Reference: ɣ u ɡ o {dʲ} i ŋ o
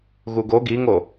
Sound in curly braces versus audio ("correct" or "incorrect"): incorrect